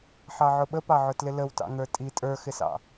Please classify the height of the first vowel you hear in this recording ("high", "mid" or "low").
low